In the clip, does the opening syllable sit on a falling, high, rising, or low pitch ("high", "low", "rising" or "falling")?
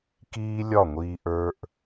high